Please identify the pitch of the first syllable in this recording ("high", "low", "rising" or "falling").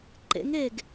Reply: rising